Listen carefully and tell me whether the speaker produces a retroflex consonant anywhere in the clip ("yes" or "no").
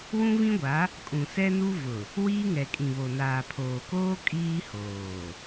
no